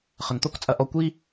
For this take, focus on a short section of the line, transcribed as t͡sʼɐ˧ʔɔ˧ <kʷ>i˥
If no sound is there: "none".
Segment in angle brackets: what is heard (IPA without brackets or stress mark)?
kʷ